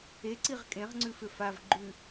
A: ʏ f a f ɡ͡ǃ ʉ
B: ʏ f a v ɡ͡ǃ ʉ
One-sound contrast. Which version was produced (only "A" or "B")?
B